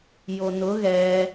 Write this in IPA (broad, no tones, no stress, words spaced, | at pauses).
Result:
jonʊ ɣɛ